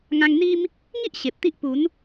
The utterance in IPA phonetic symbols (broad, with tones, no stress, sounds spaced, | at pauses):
ŋ ã˧ ŋ n̪ i˦ m | ŋ i˦ ʔ ɕ e˨ p̚ t̪ i˦ ʔ p u˨˦ n